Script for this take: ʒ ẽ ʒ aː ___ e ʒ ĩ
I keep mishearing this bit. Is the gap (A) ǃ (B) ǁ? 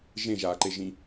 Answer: A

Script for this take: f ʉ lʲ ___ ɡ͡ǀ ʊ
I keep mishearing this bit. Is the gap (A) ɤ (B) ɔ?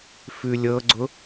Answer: A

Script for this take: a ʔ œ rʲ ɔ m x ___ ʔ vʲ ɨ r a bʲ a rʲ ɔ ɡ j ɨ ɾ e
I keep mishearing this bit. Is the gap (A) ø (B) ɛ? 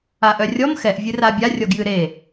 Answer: B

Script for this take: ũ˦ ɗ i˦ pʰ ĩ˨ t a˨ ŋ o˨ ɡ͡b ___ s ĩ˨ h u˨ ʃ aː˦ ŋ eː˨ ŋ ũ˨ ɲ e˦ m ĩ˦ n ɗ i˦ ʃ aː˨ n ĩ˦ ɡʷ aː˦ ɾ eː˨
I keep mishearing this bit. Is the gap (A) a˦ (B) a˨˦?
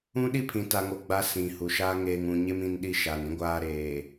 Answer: B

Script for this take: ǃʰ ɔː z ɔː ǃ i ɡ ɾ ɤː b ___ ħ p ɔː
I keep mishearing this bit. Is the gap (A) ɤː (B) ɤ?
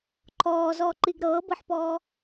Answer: B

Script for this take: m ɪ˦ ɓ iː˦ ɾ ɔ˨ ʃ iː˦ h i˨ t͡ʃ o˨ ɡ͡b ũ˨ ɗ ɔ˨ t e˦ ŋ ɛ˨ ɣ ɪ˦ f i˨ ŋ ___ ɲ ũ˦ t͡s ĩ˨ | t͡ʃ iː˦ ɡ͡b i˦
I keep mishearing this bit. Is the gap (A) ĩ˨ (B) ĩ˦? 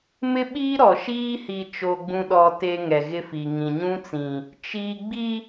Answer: A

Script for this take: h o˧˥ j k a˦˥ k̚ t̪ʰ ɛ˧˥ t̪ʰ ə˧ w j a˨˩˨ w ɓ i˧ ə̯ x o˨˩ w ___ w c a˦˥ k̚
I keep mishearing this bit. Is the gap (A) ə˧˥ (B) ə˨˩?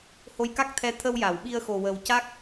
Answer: B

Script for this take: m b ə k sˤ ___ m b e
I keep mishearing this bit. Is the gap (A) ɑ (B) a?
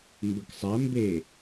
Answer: B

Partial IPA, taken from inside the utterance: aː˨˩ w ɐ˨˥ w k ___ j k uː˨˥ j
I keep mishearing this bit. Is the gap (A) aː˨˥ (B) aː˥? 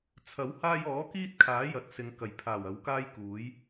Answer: B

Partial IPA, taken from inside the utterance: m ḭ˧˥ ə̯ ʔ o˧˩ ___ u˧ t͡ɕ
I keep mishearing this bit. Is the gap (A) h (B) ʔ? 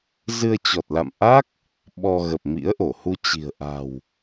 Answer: A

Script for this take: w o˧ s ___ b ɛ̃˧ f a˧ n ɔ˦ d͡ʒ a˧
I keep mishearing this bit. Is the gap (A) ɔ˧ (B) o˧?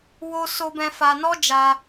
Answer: B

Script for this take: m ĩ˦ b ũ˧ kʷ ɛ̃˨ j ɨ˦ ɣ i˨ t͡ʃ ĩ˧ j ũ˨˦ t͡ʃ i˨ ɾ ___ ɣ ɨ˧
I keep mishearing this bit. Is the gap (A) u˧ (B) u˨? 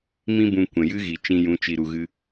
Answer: B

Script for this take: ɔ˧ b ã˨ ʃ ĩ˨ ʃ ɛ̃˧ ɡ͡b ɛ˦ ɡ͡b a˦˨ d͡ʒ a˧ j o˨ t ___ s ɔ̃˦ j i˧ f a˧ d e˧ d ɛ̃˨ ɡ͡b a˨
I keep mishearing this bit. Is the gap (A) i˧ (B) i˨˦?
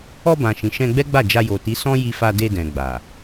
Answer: B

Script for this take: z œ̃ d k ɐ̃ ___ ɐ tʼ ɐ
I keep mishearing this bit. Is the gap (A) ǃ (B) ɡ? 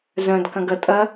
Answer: B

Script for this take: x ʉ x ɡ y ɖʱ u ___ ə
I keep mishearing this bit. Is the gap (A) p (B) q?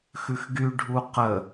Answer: B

